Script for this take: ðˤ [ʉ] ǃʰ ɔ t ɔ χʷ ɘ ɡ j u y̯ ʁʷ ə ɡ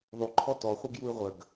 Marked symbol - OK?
yes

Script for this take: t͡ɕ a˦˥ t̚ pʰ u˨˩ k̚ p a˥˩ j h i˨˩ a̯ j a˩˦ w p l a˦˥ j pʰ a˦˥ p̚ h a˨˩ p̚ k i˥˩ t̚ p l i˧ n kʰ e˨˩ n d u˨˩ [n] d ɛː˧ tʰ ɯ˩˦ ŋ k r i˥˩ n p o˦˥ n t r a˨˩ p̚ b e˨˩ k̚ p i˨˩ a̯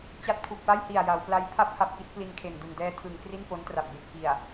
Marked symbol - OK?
yes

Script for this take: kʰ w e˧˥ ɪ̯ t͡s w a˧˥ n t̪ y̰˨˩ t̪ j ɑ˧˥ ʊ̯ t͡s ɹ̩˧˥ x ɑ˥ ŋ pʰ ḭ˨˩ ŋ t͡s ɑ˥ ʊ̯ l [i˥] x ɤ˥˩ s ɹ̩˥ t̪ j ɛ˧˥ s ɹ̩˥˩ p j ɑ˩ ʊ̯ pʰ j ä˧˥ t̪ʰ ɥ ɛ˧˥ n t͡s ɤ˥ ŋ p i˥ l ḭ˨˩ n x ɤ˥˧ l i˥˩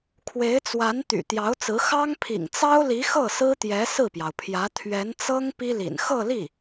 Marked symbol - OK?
no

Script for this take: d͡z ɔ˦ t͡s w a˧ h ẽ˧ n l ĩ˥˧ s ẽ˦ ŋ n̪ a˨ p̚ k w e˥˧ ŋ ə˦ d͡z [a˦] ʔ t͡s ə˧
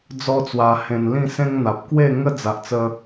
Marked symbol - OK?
no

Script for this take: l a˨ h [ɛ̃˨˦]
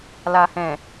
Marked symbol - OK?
no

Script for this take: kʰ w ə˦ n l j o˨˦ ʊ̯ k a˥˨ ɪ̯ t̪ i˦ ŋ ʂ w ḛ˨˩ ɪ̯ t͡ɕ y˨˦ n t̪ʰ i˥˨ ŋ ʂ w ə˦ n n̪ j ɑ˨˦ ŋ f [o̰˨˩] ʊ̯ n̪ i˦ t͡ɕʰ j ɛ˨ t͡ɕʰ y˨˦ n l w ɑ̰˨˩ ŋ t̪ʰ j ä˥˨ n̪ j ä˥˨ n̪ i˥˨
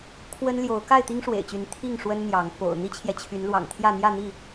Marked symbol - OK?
yes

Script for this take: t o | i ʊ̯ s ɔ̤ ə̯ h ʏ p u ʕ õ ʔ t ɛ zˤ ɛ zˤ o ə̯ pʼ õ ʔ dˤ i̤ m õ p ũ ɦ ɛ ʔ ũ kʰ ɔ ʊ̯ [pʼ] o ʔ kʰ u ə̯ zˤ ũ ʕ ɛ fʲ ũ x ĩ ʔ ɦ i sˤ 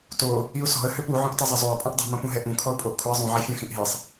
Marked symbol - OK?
yes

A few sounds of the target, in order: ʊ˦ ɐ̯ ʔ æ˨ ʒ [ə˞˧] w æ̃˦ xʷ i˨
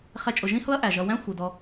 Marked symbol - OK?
no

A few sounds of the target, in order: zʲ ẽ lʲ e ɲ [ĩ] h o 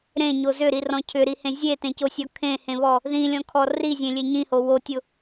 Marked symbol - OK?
yes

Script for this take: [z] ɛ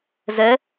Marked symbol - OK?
yes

